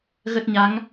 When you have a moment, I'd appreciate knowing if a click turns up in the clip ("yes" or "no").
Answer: no